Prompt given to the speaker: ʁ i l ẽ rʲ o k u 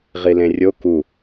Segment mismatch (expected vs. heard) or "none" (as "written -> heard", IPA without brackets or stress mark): none